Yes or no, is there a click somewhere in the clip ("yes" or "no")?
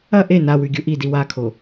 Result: no